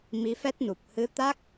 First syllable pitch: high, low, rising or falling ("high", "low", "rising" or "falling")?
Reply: rising